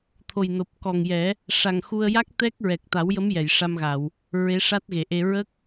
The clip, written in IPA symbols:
t̪ʰ o˨˩ j n o˨˩ p̚ k ɔ˨˩ ŋ j ɛ˨˩˦ | ʂ a˨˩ ŋ x u˧ ə̯ j a˦˥ k̚ t̪ ɛ˦˥ k̚ ɹ ɛ˨˩ k̚ t̪ a˨˩˦ w j ə˧˥ m j ɛ˨˩˨ j ʂ a˧ m ɣ a˨˩˨ w | ɹ e˧˥ ʂ a˦˥ t̚ ɣ e˨˩˨ ʔ e˧ ɹ ə˦˥ k̚

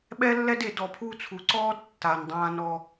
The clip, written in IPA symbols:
ɓ ɛ˦ lː ɛ˦ d e˨ d ɔ˨ pʰ u˦ t͡sʰ u˨ ǀ ɔː˦ d tː a˨ n dˤ ãː˦ n ɔ˦

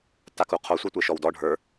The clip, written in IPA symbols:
t a k u qʰ o sʷ ə˞ tʷ e ʃ ɔ w d ɔ ɖʱ ə˞

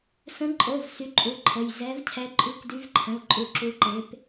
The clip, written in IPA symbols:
s ə̃˨˦ ǃʼ o˩˧˩ v s y˨˦ ǃʼ u˩˧˩ ǃʰ ə˩˧˩ j z ɛ˨˦ v cʰ ɛ˨˦ ǃʼ ʉ˨˦ k d y˨˦ v ǃʰ ə̃˩˧˩ l ǃʼ u˨˦ ǁ u˨˦ ǃ e˨˦ p

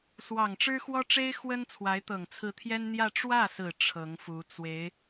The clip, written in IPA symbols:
s w ɑ˨˩ ŋ ʈ͡ʂ ɻ̩˥ x w ɔ˥ ʈ͡ʂ e˥ ɪ̯ x w ə˥ n t͡sʰ w a˧˥ ɪ̯ t̪ ɤ˨˩ ŋ t͡sʰ ɹ̩˧˥ t̪ʰ j ɛ˥ n n̪ j ä˥˧ ʈ͡ʂ w ä˥˩ s ɹ̩˨˩ ʈ͡ʂʰ ɤ˧˥ ŋ f u˧˥ t͡s w e˧˥ ɪ̯

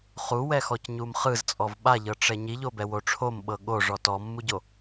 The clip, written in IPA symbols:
χ u w ɛ x ɔ c ɲ u m χ ɯ z t͡sʼ ɔ v ɓ a ʎ ɤ ʈ͡ʂ ɛ ɲ i ʎ o b ɛ w o ʈ͡ʂʰ o m ɓ ɤ ɠ o ʐ ɔ t ɔ mː u ɟ o

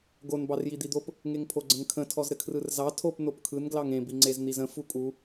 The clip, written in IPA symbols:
ɡ o n b ɑ r j i d̪ i d̪ o p | ŋ e ŋ pʰ o ɡ͡ǀ ə̃ ŋ kʰ ə̃ tʰ ɔ z ɾ ɘ kʰ r ɯ r z ɑ tʰ o p n o p kʰ ɯ n ɡ l ɑ ŋ ẽ b i ŋ͡ǀ e z n̪ i z ə̃ f u kʼ u

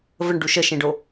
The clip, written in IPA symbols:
v ə ɳ ɖ u ʃ ə ʃ ẽ ɖ o

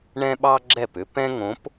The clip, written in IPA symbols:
ɳ ɛ̃˦ ɓ ɑ˦ ɡ͡ǁ ɛ˦˨ p ʏ˦ p ɛ̃˦ ŋ õ˨˦ p

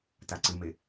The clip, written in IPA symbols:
t a ǀ ɨ m e

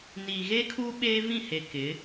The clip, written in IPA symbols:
n i˨ ɣ e˦ kʰ u˦ ɓ eː˦ v ĩ˦˨ h e˨ k ɪ˨˦

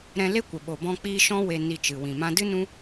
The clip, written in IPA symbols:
ɾ ɛ̃˧ l e˦ kʷ ə˨ ɓ o˨ b ɔ̃˧ k͡p iː˧ ʃ ɔ̃˦ w e˧ n i˧ t͡ʃ ɨ˨ w ĩ˨ m ã˦ d ɨ˦ n ũ˦

